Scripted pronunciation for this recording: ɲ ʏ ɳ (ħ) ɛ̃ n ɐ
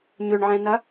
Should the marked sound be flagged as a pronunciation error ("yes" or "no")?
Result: yes